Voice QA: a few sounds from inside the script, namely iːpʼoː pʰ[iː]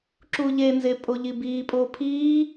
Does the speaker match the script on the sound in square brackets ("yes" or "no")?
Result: yes